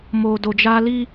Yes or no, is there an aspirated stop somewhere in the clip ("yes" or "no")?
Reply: no